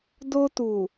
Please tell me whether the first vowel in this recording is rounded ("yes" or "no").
yes